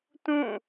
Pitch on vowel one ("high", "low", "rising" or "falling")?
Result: falling